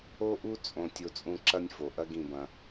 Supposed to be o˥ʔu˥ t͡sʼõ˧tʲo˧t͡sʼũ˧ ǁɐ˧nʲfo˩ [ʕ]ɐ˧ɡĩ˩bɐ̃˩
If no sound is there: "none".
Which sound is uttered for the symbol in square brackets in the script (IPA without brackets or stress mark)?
ʔ